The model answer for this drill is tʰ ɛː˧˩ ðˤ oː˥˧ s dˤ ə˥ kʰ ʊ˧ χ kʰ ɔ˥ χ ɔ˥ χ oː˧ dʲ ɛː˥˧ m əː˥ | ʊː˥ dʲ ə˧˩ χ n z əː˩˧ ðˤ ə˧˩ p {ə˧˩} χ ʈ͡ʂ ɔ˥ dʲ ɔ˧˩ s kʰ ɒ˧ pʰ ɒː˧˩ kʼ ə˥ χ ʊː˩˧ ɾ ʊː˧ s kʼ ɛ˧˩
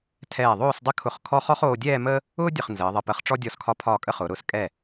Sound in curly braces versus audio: correct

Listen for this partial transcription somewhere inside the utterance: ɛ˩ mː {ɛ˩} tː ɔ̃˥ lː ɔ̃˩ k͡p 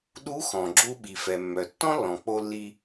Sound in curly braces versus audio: incorrect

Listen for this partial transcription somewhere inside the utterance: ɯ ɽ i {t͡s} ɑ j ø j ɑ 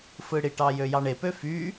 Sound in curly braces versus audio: incorrect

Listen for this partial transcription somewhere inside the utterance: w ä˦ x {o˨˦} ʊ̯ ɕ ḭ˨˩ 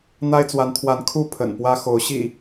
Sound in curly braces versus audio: correct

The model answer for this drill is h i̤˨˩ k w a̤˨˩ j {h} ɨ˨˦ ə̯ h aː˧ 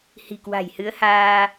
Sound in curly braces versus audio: correct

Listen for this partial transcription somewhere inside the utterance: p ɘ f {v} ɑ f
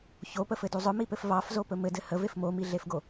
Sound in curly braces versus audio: correct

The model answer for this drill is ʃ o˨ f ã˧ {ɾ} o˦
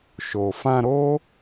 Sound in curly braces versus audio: correct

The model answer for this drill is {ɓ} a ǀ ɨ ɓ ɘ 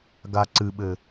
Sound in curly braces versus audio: incorrect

